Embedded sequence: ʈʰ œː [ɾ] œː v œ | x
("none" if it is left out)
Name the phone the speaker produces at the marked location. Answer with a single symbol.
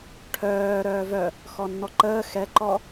ɾ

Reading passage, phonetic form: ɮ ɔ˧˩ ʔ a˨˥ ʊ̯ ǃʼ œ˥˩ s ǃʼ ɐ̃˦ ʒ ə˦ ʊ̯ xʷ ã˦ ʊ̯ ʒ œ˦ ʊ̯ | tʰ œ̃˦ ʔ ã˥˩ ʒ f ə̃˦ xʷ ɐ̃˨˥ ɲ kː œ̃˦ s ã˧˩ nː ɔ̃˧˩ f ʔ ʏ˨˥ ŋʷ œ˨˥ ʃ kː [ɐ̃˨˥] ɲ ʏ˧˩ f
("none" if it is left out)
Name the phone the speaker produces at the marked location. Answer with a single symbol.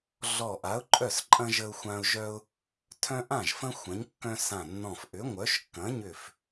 ɐ̃˨˥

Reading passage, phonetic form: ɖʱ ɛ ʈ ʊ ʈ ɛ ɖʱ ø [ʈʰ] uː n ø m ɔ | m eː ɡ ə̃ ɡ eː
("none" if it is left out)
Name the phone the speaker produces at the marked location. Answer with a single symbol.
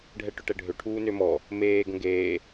ʈʰ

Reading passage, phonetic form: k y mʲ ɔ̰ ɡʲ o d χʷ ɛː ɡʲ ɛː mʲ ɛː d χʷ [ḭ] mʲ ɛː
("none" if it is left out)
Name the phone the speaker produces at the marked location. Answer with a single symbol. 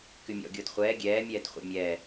ḛ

